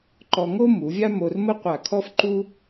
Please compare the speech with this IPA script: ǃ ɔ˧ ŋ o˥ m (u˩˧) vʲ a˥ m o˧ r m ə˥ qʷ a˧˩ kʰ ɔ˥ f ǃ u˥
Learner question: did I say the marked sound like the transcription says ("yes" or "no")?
yes